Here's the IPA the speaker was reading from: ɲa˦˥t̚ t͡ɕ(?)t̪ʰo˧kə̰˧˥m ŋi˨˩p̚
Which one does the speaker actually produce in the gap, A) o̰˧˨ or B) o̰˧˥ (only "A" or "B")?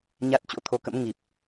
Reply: B